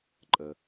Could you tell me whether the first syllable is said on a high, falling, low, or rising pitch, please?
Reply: low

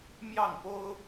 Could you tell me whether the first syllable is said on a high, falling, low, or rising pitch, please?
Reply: falling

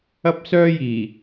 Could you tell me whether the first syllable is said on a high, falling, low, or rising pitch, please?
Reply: high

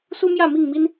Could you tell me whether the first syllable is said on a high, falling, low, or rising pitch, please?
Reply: high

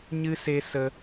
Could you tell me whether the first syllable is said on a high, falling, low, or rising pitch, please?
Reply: high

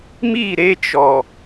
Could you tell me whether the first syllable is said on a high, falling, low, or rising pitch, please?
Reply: falling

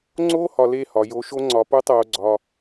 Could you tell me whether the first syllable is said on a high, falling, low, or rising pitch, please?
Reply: high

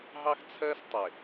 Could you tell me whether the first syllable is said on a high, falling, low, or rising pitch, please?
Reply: high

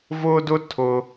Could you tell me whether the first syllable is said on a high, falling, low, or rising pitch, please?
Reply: high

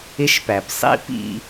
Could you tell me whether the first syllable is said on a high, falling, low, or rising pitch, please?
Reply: high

